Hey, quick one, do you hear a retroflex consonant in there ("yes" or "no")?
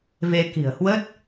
no